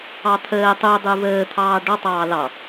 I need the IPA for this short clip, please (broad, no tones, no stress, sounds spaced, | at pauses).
ɑ t̪ʰ əː tˤ u dˤ u v əː t̪ʰ ɑː ɖ ɔ tˤ ɑː l ɑ